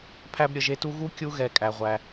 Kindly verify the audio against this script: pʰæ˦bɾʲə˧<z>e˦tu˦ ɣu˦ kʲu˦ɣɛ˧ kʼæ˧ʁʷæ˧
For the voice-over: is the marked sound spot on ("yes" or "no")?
no